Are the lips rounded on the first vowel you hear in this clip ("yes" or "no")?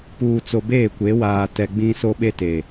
yes